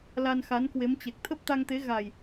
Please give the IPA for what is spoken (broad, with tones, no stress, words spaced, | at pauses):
la˧nxa˨˦n kwe˨˦mt͡ɕe˨˩k̚ t̪ʰə˦˥p̚t̪a˧ŋt̪e˨˦ ɣa˨˩j